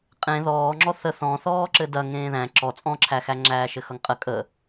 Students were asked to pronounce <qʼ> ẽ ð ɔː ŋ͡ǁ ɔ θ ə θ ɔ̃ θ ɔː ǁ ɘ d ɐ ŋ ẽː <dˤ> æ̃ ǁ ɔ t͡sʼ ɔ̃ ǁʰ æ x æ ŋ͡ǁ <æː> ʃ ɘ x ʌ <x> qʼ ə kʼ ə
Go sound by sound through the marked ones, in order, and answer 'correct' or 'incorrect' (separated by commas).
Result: correct, incorrect, correct, incorrect